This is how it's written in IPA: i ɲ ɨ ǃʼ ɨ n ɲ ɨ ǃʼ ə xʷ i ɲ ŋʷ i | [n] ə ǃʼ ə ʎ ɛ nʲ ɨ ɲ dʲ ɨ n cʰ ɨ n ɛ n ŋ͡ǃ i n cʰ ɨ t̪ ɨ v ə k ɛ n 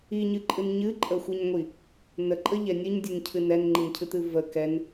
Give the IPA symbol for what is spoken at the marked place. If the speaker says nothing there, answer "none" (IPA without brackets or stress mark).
n